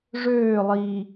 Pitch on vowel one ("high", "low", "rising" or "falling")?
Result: falling